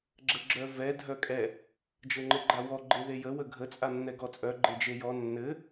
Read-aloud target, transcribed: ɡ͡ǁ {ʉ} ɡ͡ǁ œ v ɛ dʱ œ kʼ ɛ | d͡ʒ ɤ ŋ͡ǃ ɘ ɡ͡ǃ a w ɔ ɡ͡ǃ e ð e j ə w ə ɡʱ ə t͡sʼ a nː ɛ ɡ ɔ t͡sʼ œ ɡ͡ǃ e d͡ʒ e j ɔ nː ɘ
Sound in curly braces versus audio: incorrect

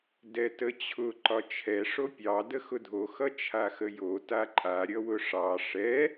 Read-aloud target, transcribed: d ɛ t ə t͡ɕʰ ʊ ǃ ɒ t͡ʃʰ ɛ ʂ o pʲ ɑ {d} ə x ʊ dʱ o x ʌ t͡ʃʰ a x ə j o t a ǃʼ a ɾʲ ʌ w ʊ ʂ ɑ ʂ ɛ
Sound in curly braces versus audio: correct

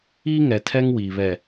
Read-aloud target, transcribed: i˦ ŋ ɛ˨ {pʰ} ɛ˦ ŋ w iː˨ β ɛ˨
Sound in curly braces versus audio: incorrect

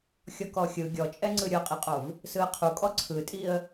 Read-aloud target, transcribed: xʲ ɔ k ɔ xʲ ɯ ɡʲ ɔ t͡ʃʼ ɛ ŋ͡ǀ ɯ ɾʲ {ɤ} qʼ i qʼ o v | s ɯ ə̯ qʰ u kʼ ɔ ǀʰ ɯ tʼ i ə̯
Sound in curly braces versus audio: correct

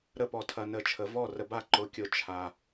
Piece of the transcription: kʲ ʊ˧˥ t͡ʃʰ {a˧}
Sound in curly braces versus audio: correct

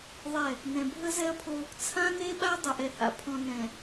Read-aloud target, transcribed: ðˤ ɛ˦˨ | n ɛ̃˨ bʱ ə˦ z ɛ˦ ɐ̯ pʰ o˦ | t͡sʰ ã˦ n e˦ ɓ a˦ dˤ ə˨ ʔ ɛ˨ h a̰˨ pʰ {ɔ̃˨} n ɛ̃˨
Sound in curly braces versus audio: correct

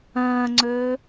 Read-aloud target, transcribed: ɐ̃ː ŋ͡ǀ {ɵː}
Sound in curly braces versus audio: correct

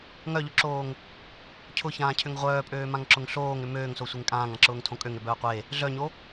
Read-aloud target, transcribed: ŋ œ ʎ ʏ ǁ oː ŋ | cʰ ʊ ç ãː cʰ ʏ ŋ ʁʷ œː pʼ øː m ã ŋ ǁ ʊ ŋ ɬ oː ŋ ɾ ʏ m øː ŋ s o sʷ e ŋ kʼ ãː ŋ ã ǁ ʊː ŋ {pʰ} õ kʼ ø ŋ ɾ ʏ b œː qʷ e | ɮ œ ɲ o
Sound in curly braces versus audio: incorrect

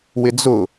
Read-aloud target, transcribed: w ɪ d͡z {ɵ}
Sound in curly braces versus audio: incorrect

